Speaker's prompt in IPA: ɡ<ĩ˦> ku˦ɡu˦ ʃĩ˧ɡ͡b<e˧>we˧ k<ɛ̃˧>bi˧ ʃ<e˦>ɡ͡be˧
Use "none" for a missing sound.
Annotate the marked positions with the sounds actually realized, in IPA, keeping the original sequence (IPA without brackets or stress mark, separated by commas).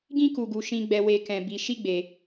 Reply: ĩ˦, ɛ˧, ɛ̃˧, i˦